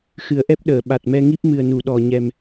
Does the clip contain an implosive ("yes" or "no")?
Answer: yes